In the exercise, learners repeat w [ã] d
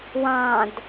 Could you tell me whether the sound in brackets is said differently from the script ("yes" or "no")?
yes